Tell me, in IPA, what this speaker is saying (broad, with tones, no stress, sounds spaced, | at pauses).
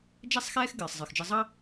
d͡ʒ ɛ˦ sˤ x ɛː˦ x ɡ ɨː˨ sˤ zˤ ɨ˨ x d͡ʒ ɨ˧ zˤ ɑ˦